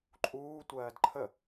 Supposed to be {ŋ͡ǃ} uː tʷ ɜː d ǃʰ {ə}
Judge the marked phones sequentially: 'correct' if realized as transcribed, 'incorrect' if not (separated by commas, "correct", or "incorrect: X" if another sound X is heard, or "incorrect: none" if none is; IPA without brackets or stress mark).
incorrect: ǃʼ, correct